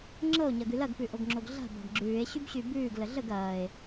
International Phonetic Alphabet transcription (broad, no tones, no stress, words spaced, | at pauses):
ŋ͡ǁɤo̯ɲɐɡʉ lɐɡpʉʔoɡŋ͡ǁoɡ ɮa̤ba̤ɡ ɡ͡ǁʉːe̯ɕybɕy bʉːɡlə ɮəɡ ɐːe̯